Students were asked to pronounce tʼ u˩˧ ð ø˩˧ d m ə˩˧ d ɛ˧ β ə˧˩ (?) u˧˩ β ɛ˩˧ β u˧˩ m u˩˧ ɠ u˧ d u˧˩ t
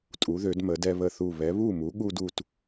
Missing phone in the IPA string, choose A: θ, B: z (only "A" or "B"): A